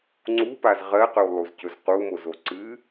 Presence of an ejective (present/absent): absent